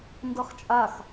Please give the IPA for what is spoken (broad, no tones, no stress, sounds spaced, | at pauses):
n d ɤ χ t͡ʃʼ a x